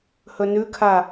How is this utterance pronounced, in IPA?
h ɵ n ʉ kʰ a

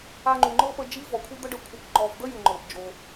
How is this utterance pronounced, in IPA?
a˧ ŋ͡ǃ u˩ ŋ͡ǃ ɤ˥ p ə˧ d͡ʒ i˥ v ɔ˩ kʷʰ i˥ d̪ ə˥ ɖ ə˧ kʷʰ ɤ˧ k ŋ͡ǃ ɔ˧ v d̪ ə˥ j u˩ ŋ͡ǃ ɤ˩ p d͡ʒ o˩

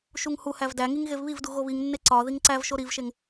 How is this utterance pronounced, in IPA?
ʃ u ŋ h u h æ v d æ ŋ i ŋ ɣ e v β i v d u ɣ o β i ŋ nː e ǀ ɒ ð i ŋ ǀ æ v ʃ o ɾ i v ʃ e ŋ

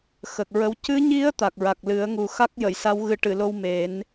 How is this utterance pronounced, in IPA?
x ə˨˩ k̚ ɹ ə˧ w c ɨ˧˥ ɲ i˧˥ ə̯ t̪ a˨˩ k̚ ɹ a˨˩ k̚ l ɨ˨˩˦ ə̯ ŋ u˨˩ x a˦˥ k̚ j ə˨˩˨ j s a˧˥ w ɣ ɨ˨˩˦ ʈ ɨ˨˩˨ l o˧ w m e˨˩˦ n

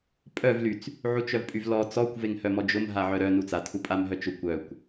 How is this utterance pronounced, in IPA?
pʼ œ v l y t͡s | ʕ u t͡ʃ œ v pʼ y v l ɔ t͡s ɔ kʷ v e ŋ h œ m ɔ d͡ʒ ʊ m ɦ a ʕ œ ɾ œ n u t͡s a tʰ u pʼ a m ɦ œ t͡ʃ ʊ kʷ œ kʷ

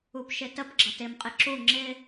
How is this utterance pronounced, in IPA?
u p ʃ ɪ t ə p ɡ͡ǁ ʌ t ɪ m qʼ ɪ ǁ u ŋ͡ǁ ɪ

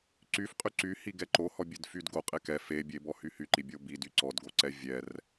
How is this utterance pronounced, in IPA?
ǀ y f qʼ y ǀ y h i ɡ ɛ ǃ o h ɔ bʲ e d f y d ɡ o qʼ e k ɛ f e bʲ e b ɔ h y h y ǃ i bʲ o b i d y ǀ ɔ d ɡ o ǀ ɛ vʲ ɛ r

